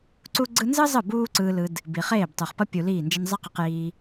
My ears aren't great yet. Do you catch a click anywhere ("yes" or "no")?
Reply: yes